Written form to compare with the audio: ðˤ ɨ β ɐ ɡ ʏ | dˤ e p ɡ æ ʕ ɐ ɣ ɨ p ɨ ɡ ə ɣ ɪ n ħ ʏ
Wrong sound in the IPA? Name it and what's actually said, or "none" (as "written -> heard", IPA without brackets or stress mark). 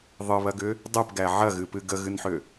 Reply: ɪ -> ɨ